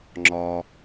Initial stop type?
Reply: click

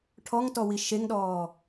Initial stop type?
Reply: aspirated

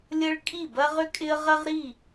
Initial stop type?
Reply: ejective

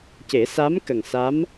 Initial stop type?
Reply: plain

